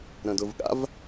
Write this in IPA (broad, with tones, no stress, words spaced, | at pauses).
ɾə̃˨dʊ˨vɠa̰˦v